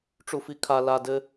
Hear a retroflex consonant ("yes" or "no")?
yes